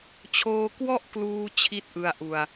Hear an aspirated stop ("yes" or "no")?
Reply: yes